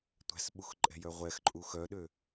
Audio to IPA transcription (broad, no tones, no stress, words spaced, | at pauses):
tʷæ̤sɓuxǃʼɛ̤jœ ʁʷɛxǃʼu xœɗø